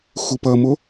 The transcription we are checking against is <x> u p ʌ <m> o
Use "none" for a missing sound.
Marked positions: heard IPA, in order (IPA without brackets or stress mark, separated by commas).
x, m